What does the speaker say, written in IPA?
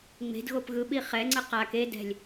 ŋ͡m e̤ d ɣ o p ɣ ɯ ɓ i χ ɛ ŋ͡ǀ ɯ q a k e d ɛ̤ lʲ

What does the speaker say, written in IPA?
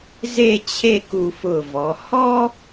z e˥˧ t͡ɕʰ e˥˧ k u˧ f ʊ˧˩ v ɔ˩˧ h ɔ˥

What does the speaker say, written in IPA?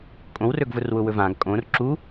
kʼ õ w r ɵ ɡ v ʊ r w ʊ w ɵ v ã ɡ kʼ õ r ǁ u

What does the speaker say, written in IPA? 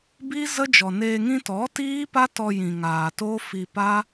b iː˦ z ə˦ d͡ʒ ɔ˨ n eː˧ ŋ ĩ˧ t ɔ˨˦ t iː˦ p a˦ t ɔ˧ j ĩ˨ ŋ aː˨ t oː˦ f i˧ p a˦

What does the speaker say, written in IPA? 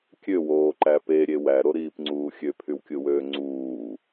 kʲ ø w oː ǃ æ p e ɾʲ e w æ ɾ o ɾ iː p ŋ͡ǀ uː xʲ ø pʰ y w kʲ ɯ w øː ŋ͡ǀ uː

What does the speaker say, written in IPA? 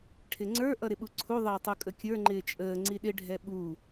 ʈʰ ɪ ŋ͡ǀ ə˞ ʔ ʌ ɾ ɪ ɓ u ǀʰ u ðˤ ɪː tˤ u kʼ ə kʲ ə˞ ŋ͡ǃ ɪː t͡ʃʼ əː ŋ͡ǀ i ɗ ɪ ɖʱ ɛ ɓ u

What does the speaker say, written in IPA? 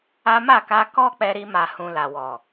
a˦ m a˦˨ k a˧ k ɔ˦ k͡p ɛ˧ ɾ i˧ m a˨ h ũ˨ l a˨ w ɔ˨

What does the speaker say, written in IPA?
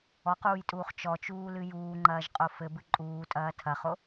ɔ q uː j tʼ uː χ t͡ʃ ɔ t͡ʃ uː l ɨ j uː ŋ͡ǃ ɐː ʒ qʼ o f ɘ b ɨ ǃʼ uː tʼ ɐː tʰ ɐ χ o

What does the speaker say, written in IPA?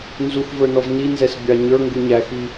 n z u x v ə˞ n ɔ v n i n z ɛ s bʲ ɑ ɲ ə˞ ŋ ɡ u ɲ æ x i

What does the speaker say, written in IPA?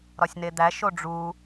ɾ ɒ sʲ n e d̪ æ ʃ o ɖ͡ʐ u

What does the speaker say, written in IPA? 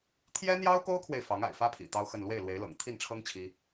t̪ʰ j ɛ˥ n̪ j ɑ˥ ʊ̯ k o˥ ʊ̯ kʰ w e˨ ɪ̯ f ɑ˧˥ ŋ a̰˨˩ ɪ̯ f ä˥ pʰ ḭ˨˩ t̪ ɑ˥ ʊ̯ x ə˥˧ n l w e˥˩ ɪ̯ l w e˧˥ ɪ̯ l ɤ̰˨˩ ŋ t̪ʰ i˥˩ n ʈ͡ʂʰ ɤ˥ ŋ t͡ɕʰ i˥

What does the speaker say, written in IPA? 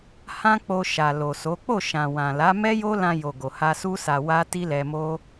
h ã˦ k͡p o˧ ʃ a˨ l o˨ s o˨˦ k͡p o˦˨ ʃ ã˨ w ã˨ l a˨˦ m ɛ˦ j o˦ l ã˧ j o˨ ɡ o˨ h a˧ s u˦ s a˧ w a˦ t i˦ l ɛ˧ m o˦

